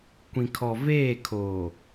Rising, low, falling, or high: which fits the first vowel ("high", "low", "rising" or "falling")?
low